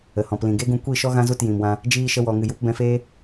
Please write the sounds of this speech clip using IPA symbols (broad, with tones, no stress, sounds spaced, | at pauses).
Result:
ə˨ h ɔ̃˨ p l ĩ˨ ɡ e˦ ɡ ũ˧ kʷ i˦˨ ʃ ɔ˦ ɣ ã˦ z u˦˨ t j ĩ˨ m w ã˧ | d͡ʒ iː˧ ʃ ə˧ w ɔ˨ ŋ ɨ˨ j u˧ p b ɛ̃˧ f eː˦